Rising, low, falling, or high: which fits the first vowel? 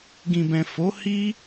low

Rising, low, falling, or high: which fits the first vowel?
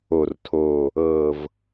low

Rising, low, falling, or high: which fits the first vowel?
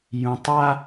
low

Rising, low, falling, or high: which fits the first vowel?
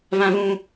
high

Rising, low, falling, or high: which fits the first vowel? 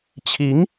rising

